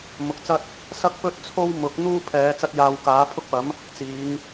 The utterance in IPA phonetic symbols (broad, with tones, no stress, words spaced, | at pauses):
mʊ˨k̚t͡sɐ˥t̚ | sɐ˥k̚pɵ˥t̚t͡sʰo˥w mʊ˨˥k̚n̪uː˥ pʰɛː˨˧t͡sɐ˧t̚jaː˨w kaː˨˥pʰʊ˥k̚pɐ˨˥m | t͡siː˨˧ŋ